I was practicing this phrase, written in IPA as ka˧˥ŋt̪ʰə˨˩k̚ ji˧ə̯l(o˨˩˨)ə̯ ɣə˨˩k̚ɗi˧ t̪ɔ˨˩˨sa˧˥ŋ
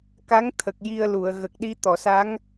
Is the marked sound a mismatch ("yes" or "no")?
yes